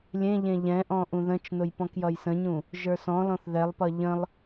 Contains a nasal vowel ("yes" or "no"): yes